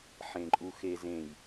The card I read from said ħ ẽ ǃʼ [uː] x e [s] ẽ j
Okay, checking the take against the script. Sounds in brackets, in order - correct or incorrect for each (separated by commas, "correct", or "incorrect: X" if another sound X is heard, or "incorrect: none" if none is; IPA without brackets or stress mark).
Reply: incorrect: u, incorrect: z